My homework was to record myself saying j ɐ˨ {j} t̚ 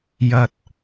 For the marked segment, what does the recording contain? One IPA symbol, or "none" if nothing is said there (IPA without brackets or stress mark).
none